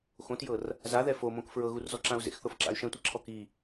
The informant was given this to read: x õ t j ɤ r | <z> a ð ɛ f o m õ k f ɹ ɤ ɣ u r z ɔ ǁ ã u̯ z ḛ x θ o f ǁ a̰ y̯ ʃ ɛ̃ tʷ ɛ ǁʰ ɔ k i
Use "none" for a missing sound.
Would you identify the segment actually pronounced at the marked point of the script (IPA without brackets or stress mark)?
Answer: z